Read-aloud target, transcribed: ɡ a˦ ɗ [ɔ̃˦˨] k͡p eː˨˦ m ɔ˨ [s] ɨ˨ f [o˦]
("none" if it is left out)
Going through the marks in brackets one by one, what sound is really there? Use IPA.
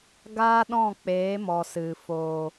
ɔ̃˦˨, s, o˨

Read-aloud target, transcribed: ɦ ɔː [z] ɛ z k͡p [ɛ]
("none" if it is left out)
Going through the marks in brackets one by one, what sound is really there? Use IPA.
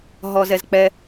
z, ɛ

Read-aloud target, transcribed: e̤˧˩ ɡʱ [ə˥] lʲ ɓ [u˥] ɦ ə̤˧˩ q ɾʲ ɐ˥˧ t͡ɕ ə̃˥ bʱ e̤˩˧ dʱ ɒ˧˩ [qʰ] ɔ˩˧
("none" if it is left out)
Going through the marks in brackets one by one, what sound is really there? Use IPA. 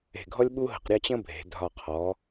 ɔ˥, u˥, qʰ

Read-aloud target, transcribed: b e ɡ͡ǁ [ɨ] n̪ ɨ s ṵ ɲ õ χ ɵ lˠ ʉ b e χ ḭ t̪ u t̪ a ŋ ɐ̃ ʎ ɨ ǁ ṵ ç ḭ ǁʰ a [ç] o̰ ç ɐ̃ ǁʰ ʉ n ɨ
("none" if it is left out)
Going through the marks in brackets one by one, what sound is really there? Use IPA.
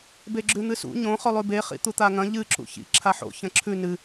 ʉ, ħ

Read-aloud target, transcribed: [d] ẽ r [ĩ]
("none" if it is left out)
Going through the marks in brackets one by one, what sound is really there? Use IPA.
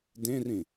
d, ĩ

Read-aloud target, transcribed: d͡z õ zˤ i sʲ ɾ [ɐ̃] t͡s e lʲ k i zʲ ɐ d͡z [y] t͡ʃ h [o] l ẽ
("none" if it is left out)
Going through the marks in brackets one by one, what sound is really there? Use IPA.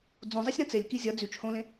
ɐ̃, y, õ

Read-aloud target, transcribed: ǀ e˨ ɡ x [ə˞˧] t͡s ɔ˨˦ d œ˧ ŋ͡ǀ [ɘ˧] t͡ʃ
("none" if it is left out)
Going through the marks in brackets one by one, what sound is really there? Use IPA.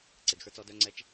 ə˞˧, ɛ˧

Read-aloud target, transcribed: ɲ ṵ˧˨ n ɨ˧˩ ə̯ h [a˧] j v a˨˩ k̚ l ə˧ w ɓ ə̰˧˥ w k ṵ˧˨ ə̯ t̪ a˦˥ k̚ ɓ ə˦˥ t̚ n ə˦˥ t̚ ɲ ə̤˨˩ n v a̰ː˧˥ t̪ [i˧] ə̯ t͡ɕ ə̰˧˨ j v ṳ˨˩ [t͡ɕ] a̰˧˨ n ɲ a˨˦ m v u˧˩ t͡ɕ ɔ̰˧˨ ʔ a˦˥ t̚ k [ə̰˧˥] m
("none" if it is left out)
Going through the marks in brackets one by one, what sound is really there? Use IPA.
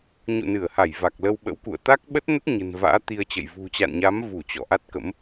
a˧˩, i˧, t͡ɕ, ə̰˧˥

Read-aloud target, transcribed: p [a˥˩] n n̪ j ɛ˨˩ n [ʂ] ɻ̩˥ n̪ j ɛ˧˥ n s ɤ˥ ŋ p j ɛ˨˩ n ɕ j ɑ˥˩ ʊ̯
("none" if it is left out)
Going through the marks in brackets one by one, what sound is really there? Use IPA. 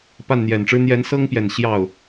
a˥˩, ʈ͡ʂ

